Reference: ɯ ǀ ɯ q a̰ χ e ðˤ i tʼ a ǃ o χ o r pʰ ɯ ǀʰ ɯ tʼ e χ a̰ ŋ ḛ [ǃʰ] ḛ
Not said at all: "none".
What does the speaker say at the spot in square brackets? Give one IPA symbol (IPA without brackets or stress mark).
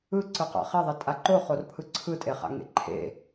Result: ǃʰ